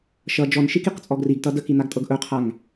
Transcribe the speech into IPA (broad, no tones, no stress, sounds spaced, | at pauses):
ʃ ʌ d͡ʒ ɔ n ʃ i k i q t͡sʼ ɔ ɡ r i ɡ t ʌ d ə k i n a ɡ tʼ ɤ ɡ ʔ ɵ qʰ a ŋ